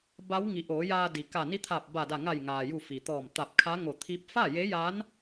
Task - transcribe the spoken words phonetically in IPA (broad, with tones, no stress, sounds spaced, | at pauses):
b a˧˥ w ŋ i˩˧ ʔ oː˩˧ j aː˧ d i˩ k a˧˩ n i˧˥ t̪ʰ aː˧˩ p̚ b a˧˩ d a˧˩ ŋ a˧˩ j ŋ aː˩ j u˧˩ f i˩ t̪ ɔː˧˩ m t̪ a˧˩ p̚ kʰ a˧˥ ŋ o˧˩ t̪ʰ i˧˥ p̚ f a˥˨ j e˧˥ j a˧˥ n